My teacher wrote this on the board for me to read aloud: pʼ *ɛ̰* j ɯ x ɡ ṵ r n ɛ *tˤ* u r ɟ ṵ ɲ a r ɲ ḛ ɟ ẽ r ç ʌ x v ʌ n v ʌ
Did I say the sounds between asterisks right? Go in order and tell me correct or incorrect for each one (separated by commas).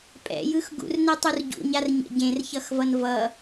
correct, correct